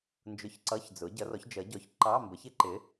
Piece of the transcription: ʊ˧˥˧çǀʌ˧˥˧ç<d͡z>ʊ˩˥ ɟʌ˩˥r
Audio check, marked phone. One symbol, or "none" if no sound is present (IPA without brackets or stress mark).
d͡z